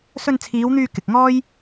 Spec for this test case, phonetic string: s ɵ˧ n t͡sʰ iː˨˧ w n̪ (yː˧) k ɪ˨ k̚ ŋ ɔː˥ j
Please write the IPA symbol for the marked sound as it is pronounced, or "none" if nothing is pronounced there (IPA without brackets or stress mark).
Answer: yː˧